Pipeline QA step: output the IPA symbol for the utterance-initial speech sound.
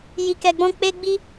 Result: j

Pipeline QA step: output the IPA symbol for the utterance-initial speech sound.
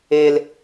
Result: e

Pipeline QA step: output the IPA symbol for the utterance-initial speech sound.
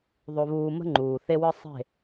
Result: ðˤ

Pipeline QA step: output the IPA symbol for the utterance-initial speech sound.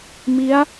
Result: m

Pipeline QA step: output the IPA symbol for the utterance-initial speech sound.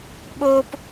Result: ɓ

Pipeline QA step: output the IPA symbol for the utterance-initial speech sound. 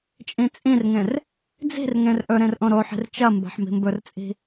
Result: t͡ʃʼ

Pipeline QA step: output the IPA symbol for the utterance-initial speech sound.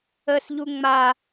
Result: ə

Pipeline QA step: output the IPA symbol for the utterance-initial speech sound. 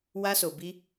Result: w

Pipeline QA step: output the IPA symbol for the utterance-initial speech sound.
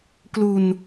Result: k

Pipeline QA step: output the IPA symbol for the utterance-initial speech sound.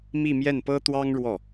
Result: m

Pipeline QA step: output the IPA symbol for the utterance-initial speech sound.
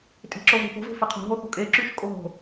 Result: tʼ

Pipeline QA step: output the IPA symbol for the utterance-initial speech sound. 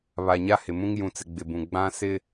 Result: β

